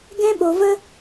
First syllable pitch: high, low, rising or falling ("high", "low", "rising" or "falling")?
high